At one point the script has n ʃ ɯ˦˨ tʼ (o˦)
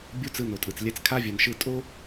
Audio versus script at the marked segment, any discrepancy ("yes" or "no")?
no